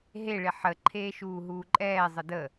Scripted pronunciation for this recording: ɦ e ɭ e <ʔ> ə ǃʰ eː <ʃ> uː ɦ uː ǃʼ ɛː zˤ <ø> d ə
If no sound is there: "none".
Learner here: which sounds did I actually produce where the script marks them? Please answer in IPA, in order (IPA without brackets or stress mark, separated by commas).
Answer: ħ, ʃ, ə